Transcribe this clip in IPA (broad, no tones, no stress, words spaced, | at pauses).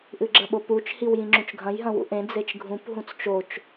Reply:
ʔɨɡ͡ǁɐɓoput͡ʃ hiwjĩŋ͡ǁũt͡ʃɡʱɐ̃j ɦɐ̃wṵʔẽ d͡zet͡ʃɡʱũp ɦũt͡st͡ʃot͡ʃ